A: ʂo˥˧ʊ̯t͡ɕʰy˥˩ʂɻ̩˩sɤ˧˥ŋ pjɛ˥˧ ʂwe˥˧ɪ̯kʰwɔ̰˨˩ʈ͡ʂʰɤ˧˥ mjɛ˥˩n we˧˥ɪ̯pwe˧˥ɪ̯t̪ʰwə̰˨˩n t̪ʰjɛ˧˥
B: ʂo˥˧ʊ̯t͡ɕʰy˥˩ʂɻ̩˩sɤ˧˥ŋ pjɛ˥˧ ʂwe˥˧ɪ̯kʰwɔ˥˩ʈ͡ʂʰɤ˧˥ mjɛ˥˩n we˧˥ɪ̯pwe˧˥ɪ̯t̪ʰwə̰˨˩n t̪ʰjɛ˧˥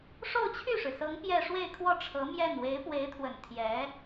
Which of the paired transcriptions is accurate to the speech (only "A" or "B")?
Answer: B